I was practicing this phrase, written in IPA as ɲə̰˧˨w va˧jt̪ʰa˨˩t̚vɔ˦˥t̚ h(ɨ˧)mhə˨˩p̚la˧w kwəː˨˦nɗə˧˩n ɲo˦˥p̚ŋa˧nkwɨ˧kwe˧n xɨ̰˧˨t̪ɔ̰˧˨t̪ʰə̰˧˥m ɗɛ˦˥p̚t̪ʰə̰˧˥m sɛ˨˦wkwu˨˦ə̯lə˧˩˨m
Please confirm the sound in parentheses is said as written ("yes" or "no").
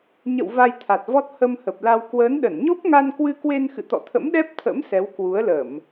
no